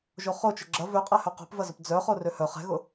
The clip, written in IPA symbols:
ʒ o χ o t͡ʃ ʊ ɡ͡ǁ ɐ v ø qʼ ɛ h œ q o̤ p v ɐ z ʊ p d͡z œ χ o r ø h œ χ ɛ̤ ɣ ʊ

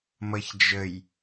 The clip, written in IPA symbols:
m ʌ ç d͡ʒ ə j

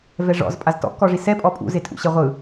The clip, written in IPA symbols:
v ɛ ʐ ɔ̰ z pʼ a z t ɔ̰ k ɔ ʐ i s ɛ pʼ ɔ pʼ ṵ z e tʼ ṵ ɕ e ʁʷ ɯ

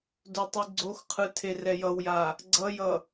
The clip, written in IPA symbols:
d o tˤ ɯ ɡ͡ǀ o x qʰ ɯ tʰ e r ɛ j ʌ w j a | ɡ͡ǀ ʌ j ʌ

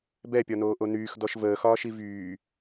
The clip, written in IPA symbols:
b ɛ pʲ ɒ n oː ʔ o n yː x d ɔ ʃ v əː x ɒː ʃ i v yː

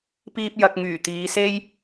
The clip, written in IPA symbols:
p iː˧ p̚ j ɐ˨ k̚ ŋ yː˨˩ t̪ iː˨˧ s e˥ j

